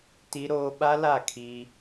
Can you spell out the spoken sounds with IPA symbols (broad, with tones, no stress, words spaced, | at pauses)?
ti˦ɾoː˦ ɓa˦la˦˨ kʰiː˦